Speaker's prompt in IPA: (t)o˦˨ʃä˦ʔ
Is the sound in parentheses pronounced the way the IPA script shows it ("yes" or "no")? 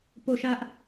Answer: no